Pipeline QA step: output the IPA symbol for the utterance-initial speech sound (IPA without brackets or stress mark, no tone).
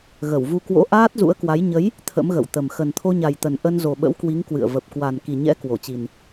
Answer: ɣ